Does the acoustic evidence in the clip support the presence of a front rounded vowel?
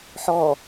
no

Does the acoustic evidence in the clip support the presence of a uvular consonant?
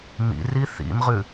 yes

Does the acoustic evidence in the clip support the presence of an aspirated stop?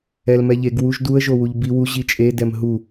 no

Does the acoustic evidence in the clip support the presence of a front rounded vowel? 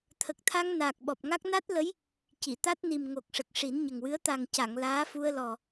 no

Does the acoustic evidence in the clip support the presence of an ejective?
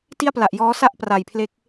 no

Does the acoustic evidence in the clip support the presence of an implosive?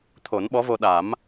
yes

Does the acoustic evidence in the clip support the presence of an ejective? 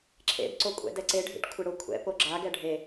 yes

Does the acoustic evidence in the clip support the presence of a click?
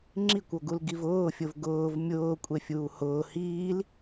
yes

